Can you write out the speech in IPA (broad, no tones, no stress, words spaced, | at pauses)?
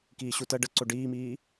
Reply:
kiːɕutɜ ɖə ǀoɖiːmiː